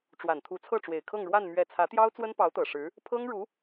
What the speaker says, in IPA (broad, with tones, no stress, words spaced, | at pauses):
ʈ͡ʂwa˨˩nt̪ʰu˧˥ t͡sʰɤ˥˩ʈ͡ʂwe˨˩ɪ̯kʰɤ˥˧ŋɻwa˥˧n mɥɛ˥˩ t͡sʰä˧˥t̪jɑ˥ʊ̯ t͡swə˥npɑ˧˥ʊ̯t̪ɤ˨˩ ʂɻ̩˧˥ | pʰɤ˥ŋɻu˧˥